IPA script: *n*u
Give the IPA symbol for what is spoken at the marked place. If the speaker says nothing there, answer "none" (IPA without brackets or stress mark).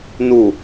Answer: n